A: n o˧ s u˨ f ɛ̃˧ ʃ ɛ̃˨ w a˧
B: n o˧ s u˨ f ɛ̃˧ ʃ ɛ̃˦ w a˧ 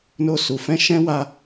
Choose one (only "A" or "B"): B